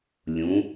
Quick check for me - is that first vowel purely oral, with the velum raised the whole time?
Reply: no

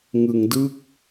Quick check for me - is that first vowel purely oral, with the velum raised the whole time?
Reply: yes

